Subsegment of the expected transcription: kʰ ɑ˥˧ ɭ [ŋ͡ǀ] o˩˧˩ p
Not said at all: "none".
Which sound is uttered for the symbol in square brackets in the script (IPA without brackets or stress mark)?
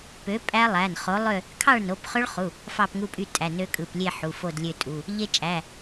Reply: n